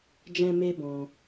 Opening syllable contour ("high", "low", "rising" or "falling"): high